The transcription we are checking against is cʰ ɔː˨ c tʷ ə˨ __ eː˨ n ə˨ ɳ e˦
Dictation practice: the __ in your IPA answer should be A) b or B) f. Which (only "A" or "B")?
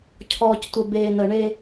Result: A